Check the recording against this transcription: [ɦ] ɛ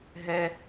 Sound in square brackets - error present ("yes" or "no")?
no